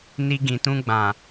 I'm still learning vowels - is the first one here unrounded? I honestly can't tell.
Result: yes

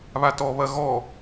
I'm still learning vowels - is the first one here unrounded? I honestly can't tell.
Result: yes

